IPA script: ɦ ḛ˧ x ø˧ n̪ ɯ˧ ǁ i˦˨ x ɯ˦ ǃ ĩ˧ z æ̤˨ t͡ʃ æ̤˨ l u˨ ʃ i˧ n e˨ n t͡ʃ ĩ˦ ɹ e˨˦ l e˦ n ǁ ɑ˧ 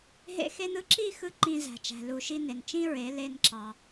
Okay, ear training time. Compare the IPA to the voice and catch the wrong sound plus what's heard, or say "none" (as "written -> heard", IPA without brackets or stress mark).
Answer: ø˧ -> e˧